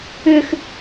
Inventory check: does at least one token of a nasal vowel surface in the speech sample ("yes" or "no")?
no